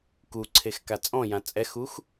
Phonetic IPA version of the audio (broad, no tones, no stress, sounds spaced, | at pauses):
k u ǀʰ e x k a t͡sʼ ɔ̃ j ã t͡sʼ ɛ x u x